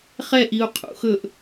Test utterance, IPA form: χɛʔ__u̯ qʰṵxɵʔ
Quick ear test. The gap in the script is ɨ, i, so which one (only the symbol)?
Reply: i